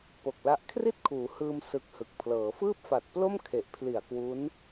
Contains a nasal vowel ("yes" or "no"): no